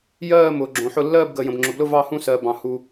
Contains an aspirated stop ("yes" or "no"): no